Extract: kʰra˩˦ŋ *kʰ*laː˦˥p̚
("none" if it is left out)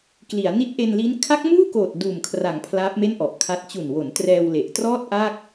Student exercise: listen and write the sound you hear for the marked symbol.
pʰ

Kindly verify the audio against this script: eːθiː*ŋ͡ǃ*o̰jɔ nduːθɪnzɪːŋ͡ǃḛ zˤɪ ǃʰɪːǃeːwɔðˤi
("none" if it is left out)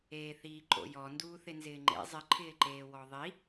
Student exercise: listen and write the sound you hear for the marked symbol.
ǃ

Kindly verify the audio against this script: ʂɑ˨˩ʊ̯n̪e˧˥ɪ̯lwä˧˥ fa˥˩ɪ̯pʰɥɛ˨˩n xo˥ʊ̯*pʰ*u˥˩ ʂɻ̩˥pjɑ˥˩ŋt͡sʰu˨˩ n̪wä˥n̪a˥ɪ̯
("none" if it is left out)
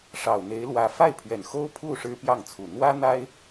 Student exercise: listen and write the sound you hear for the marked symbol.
pʰ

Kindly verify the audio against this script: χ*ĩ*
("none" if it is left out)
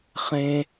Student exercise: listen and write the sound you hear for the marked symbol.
ẽ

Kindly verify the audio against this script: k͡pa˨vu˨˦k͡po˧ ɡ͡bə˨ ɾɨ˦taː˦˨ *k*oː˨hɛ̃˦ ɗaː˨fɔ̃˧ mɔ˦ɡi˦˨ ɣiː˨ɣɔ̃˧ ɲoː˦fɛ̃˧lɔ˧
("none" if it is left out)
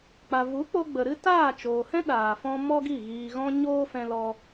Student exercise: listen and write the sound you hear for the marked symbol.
t͡ʃ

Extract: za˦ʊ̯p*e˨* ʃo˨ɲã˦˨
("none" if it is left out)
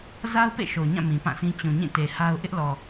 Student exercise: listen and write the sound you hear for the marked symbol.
ḛ˦˨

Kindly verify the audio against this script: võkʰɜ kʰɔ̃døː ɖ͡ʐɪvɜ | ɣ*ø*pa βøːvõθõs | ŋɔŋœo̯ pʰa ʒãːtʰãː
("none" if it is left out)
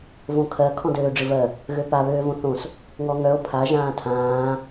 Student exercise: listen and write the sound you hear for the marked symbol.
ø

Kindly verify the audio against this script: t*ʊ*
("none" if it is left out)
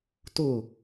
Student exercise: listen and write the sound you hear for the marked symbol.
ʊ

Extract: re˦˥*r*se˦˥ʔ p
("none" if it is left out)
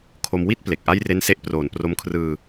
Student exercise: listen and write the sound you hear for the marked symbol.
n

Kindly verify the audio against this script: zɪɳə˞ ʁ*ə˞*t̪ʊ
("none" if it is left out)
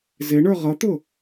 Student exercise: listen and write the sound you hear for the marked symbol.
ʌ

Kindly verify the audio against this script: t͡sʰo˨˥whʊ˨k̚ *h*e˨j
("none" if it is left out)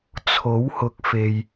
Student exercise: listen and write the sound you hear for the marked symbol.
f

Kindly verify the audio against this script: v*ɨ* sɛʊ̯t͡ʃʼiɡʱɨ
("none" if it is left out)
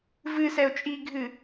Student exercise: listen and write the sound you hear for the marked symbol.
ɨ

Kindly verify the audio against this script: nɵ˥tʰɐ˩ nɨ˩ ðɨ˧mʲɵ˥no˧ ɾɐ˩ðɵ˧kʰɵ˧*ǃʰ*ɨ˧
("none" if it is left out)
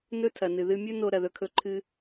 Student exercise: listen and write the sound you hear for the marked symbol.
ǃʰ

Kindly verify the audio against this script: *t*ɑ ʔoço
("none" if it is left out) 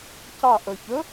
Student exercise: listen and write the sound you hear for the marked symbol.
c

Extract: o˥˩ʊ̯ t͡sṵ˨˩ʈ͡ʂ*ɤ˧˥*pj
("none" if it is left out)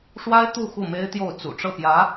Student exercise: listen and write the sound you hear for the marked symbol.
ɤ˥˩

